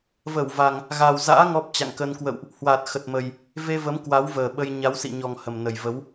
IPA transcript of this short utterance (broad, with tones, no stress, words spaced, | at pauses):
və˧˩wva˨˩ŋ | ɣa˨˩wza̰ː˧˥ ŋɔ˦˥p̚t͡ɕa̰˧˨ŋkə˧n kwə̰˧˨wʔ | hwa˨˩t̚ xə˨˩t̚mə˨˩j | ve˧və˨˦m kwa˨˦wvəː˨˩ ɓə˧j ɲa˨˦wsḭ˧˨ɲɔ˨˩ŋ hə˨˩mnə˨˩jvə˨˦w